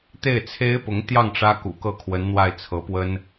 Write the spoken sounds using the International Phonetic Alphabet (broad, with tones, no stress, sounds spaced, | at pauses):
t̪ e˥˩ ɪ̯ t͡sʰ e˥ ɪ̯ p ʊ˧˥ ŋ t̪ j ɑ˥˩ ŋ ʈ͡ʂ ä˥ k ṵ˨˩ k ɤ˥˩ kʰ w ə˧˥ n n̪ w a˥˩ ɪ̯ t͡sʰ ɤ˧˥ p w ə˥ n